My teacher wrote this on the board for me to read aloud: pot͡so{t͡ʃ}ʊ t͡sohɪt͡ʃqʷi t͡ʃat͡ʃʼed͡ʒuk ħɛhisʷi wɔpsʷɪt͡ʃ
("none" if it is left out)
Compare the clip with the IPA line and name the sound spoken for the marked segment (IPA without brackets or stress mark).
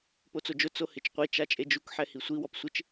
d͡ʒ